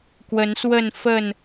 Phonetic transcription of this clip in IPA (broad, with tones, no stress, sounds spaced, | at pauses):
k w ə˨˦ n s w ə˥˨ n f ə˥˨ n